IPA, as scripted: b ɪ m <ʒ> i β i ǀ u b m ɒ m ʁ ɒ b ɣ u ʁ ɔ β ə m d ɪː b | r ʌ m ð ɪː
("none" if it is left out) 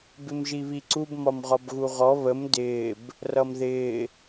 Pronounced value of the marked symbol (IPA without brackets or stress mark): ʒ